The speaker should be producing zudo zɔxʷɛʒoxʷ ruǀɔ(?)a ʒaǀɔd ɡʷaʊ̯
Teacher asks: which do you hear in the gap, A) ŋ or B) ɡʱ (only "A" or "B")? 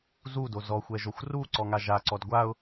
A